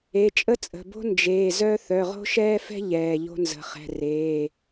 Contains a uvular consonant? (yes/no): yes